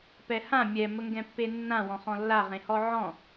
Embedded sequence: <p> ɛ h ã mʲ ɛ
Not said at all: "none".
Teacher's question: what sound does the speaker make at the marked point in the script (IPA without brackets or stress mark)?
p